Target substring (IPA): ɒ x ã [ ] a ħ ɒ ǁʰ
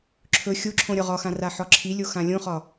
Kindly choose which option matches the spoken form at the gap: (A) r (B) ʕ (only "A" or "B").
A